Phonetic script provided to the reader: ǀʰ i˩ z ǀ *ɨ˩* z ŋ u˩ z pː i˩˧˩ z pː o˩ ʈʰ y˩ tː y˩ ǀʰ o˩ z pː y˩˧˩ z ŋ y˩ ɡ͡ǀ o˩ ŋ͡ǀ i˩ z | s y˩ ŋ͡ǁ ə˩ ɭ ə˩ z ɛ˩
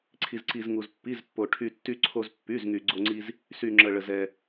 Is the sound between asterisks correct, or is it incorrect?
incorrect